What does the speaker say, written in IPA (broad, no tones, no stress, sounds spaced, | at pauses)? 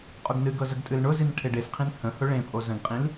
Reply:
qʼ ʊ ɡ n ɨ ɡ ɤ z ə ɡ tʼ ɨ l ɳ ʊ z i n ʈʰ e ɖ e s qʰ ĩ n h ə̃ h ʊ ɭ ẽ pʼ o z ə̃ ɡ qʼ ĩ l